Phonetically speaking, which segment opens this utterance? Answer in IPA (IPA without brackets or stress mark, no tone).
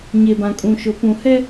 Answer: ɲ